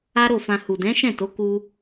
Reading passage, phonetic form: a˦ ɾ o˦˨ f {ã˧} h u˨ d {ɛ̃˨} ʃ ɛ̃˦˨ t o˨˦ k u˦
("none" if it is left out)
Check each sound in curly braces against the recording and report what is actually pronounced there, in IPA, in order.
ã˧, ɛ̃˨˦

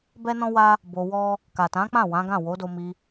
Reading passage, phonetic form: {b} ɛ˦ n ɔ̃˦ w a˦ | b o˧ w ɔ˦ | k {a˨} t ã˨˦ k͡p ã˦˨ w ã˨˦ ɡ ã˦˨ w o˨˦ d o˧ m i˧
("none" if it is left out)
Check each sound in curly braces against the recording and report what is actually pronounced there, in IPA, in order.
b, a˨

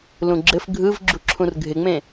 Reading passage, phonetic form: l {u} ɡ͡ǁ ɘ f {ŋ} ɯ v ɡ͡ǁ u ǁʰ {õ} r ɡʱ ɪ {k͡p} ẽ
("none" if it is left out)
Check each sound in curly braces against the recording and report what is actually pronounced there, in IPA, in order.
ũ, ɡʱ, ũ, ŋ͡m

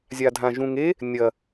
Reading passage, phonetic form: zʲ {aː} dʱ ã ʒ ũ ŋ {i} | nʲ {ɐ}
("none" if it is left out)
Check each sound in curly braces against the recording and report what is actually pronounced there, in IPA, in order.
a, e, ɐ

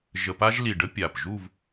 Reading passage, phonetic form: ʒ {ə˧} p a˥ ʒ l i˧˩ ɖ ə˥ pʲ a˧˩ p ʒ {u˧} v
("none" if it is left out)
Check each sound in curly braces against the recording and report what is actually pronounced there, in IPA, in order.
ə˧, u˥˧

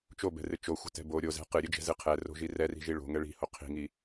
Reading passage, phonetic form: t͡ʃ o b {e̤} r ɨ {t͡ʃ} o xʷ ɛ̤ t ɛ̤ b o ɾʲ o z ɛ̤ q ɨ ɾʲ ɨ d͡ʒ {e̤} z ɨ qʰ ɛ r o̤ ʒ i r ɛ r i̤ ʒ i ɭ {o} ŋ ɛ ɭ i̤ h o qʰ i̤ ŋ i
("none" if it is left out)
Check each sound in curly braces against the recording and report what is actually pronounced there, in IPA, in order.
ɛ̤, t͡ʃ, ɛ̤, o̤

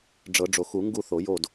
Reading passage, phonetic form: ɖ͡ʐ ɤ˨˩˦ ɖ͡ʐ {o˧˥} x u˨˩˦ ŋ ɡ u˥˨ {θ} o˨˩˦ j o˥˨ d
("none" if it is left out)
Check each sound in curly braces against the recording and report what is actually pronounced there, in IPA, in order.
o˨˩˦, θ

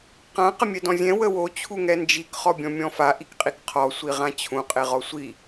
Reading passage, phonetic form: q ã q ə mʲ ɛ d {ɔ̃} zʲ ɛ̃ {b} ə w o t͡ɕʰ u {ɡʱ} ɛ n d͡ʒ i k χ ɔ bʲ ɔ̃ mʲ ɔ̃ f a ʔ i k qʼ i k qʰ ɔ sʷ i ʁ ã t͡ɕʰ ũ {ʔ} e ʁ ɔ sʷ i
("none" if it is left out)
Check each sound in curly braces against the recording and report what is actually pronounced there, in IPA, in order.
ɔ̃, w, ŋ, qʼ

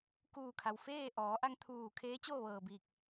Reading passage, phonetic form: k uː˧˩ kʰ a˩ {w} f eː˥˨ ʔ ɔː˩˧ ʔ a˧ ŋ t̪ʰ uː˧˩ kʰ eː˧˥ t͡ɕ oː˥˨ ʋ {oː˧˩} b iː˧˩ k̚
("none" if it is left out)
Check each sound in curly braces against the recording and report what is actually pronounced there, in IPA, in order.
w, ɤː˧˩

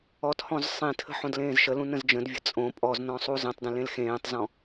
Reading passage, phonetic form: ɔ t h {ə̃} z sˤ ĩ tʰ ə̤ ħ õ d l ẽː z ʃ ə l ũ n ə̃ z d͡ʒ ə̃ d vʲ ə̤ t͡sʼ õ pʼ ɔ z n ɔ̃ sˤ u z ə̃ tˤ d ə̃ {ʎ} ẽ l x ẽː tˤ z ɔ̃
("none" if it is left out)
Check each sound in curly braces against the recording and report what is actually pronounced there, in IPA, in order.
ɔ̃, l

